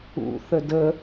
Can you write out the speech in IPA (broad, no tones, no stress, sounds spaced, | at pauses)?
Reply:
ṵ θ ə d ə